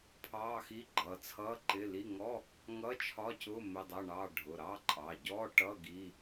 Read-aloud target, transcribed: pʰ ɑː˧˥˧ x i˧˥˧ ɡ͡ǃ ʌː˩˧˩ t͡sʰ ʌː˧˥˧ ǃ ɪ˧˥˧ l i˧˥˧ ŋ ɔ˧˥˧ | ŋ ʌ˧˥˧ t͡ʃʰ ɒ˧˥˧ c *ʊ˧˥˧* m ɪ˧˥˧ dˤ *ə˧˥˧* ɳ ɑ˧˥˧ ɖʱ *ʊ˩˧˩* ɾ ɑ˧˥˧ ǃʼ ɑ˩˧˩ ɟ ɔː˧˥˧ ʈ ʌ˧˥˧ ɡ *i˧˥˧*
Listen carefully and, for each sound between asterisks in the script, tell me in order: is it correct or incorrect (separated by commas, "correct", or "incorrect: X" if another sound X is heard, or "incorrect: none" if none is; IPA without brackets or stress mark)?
correct, incorrect: ʌ˧˥˧, correct, correct